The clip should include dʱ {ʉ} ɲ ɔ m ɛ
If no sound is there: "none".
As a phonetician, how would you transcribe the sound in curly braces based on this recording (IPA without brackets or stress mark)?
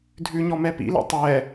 ʉ